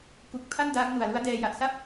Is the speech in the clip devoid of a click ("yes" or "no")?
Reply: yes